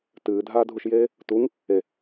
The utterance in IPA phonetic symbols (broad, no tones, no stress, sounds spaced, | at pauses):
t ɨː dʱ aː dʱ u ʃ j eː | t u ŋ | e